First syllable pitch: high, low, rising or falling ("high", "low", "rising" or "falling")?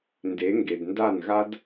rising